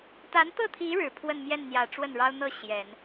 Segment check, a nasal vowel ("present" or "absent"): absent